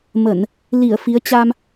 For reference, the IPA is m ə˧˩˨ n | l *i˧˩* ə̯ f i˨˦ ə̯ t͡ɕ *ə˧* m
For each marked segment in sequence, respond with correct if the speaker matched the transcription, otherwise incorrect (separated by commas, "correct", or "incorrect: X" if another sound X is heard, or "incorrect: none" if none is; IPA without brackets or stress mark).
correct, incorrect: a˧